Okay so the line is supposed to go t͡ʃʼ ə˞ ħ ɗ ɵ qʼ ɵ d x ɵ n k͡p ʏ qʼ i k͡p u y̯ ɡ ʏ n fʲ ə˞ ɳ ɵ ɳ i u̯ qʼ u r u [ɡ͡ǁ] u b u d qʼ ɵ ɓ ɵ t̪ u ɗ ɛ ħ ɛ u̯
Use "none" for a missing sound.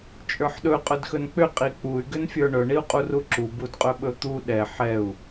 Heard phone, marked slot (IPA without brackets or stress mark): ǁ